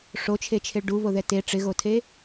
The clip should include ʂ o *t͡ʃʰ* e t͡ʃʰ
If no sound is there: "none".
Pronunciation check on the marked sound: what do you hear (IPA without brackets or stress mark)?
t͡ʃʰ